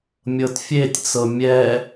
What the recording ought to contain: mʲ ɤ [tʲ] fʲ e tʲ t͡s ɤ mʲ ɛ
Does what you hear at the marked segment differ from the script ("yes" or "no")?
yes